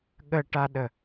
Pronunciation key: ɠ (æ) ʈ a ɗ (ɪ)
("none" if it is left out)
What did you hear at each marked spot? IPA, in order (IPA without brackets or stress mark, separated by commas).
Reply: ə, ə